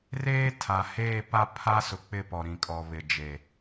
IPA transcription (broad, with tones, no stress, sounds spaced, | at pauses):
r eː˦ tʰ a˨ h eː˦˨ p a˦ pʰ a˦ s ʊ˨ k͡p ɪ˦˨ p ɔ˨ ɾ ĩ˨ kʼ ɔ˨ β ɪ˨ d͡ʒ e˨